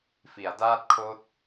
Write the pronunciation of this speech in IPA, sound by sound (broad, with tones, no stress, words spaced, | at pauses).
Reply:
fi˩˦a̯daː˥˩t̚ kʰoː˦˥t̚